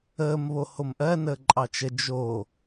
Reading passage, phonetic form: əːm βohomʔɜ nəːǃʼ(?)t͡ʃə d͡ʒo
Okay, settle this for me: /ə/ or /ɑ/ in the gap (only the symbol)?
ɑ